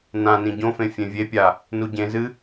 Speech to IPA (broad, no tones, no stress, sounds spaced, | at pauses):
n ã n ĩ ɟ õ f ẽ fʲ ẽ vʲ e pʲ a | n u ɟ ẽ z ɨ